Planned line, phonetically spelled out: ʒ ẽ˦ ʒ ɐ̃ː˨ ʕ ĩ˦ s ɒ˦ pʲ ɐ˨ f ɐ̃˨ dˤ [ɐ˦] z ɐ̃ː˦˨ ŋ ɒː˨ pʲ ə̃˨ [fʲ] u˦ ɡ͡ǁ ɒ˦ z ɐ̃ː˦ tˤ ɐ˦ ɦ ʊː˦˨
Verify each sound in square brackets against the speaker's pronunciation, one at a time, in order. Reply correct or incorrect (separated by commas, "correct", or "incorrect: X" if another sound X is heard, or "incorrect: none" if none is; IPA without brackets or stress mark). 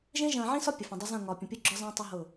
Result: correct, incorrect: pʲ